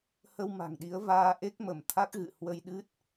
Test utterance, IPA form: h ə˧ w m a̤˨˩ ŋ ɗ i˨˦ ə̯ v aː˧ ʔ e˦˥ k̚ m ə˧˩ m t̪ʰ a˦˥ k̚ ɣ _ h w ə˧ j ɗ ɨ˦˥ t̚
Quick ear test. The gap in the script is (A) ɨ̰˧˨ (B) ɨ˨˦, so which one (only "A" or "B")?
A